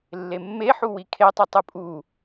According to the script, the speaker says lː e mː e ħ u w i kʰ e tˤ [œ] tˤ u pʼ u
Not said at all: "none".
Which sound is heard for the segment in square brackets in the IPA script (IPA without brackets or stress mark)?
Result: œ